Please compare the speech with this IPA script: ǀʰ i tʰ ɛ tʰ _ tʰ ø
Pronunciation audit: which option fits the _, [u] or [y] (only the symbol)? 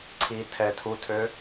u